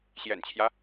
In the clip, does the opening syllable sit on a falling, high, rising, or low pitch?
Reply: low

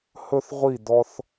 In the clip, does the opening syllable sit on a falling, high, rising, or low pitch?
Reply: high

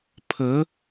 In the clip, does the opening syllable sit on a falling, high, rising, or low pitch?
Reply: rising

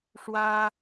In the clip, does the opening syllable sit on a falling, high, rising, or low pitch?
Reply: high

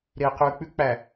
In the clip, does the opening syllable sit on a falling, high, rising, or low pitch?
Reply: low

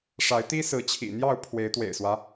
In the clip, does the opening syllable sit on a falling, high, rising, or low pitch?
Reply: rising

